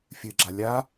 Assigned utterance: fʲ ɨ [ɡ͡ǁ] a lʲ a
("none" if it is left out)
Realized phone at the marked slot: ɡ͡ǁ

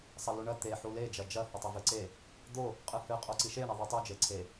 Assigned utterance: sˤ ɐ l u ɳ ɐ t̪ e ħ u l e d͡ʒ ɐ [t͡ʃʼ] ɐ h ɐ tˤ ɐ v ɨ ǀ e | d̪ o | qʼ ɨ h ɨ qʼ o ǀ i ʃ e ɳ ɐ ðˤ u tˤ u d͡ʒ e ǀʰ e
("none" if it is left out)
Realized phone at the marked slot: d͡ʒ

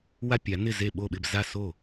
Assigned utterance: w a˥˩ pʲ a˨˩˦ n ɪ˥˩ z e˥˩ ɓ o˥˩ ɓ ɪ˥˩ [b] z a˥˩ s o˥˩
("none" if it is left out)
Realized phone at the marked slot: b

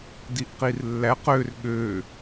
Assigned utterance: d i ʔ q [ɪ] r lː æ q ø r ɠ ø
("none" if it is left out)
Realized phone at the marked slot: i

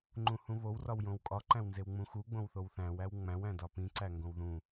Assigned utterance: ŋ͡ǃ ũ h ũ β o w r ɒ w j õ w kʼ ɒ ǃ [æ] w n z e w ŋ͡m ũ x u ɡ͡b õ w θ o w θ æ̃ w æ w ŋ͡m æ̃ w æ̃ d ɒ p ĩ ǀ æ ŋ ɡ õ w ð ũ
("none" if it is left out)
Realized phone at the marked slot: æ̃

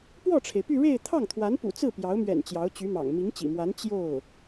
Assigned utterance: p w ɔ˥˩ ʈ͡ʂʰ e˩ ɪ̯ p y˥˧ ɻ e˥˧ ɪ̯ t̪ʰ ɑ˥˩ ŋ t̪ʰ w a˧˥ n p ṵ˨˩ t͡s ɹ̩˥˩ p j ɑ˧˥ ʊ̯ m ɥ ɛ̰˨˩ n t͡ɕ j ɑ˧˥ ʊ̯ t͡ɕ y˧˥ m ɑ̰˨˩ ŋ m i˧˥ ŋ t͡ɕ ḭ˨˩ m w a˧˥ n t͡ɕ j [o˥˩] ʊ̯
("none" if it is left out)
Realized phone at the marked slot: o˥˩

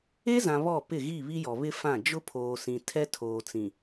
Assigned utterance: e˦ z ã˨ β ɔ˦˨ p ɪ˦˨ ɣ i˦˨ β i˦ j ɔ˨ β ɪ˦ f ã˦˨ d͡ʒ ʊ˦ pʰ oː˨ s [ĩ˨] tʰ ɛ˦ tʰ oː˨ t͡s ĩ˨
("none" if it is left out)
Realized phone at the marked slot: ĩ˨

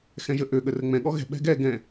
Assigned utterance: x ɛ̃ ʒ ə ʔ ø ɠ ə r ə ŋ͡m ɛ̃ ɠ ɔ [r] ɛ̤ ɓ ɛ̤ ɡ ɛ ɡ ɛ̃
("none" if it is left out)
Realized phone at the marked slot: ɣ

